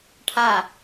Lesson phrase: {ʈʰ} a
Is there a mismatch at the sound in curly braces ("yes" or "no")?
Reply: no